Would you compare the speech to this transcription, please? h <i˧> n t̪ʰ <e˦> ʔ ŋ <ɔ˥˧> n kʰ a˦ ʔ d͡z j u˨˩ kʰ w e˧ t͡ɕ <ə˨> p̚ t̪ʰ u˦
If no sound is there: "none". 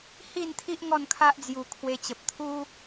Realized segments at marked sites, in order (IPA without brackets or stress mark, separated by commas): i˥˧, i˦, ɔ˥˧, ə˨